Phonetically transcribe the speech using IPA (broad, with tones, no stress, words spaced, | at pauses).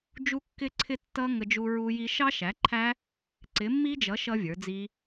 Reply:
d͡ʒu˦˥kːɪ˦˥ǀʰɪ˦˥ tːʌ˦˥ ŋə˦˥d͡ʒu˦˥ ɹu˦˥ji˦˥ ʃɑ˦˥ʃæ˨˥ǃʰæ˦˥ | ǀɪ˨˥mːi˦˥d͡ʒʌ˨˥ ʃʌ˦˥ vʲə˞˨˥d͡zi˦˥